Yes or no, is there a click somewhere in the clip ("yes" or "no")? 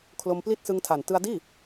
no